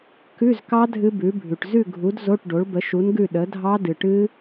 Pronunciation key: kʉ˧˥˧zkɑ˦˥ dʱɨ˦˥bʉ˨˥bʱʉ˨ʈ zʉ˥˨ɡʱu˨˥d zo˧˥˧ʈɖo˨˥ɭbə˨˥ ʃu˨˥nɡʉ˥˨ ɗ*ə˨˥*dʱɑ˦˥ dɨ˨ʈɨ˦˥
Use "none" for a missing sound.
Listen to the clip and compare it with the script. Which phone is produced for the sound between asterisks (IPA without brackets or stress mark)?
ə˨˥